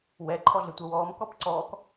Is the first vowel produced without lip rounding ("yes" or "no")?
yes